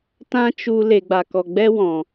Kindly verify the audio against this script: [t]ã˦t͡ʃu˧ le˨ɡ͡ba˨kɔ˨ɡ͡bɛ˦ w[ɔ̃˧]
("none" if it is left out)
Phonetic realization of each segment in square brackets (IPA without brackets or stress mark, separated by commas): t, ɔ̃˨